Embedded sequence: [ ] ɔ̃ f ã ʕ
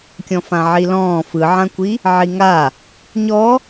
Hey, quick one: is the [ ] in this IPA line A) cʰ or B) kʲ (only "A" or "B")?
B